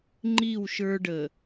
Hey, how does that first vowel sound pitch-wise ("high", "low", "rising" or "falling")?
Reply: falling